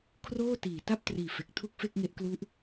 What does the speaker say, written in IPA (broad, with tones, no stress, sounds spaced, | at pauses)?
kʰ r oː˥˩ t iː˨˩ t a˥˩ p̚ t r iː˨˩ f e˨˩ k̚ tʰ u˥˩ k̚ f e˥˩ k̚ ŋ e˦˥ ʔ k l u˦˥ ʔ